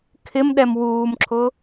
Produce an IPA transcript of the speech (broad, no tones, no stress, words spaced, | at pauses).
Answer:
kʰɪm ɗɛmwuːmǁʰʊ